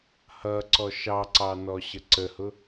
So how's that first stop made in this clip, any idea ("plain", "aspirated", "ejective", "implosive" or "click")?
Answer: click